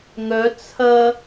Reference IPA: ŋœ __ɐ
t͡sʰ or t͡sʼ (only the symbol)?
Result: t͡sʰ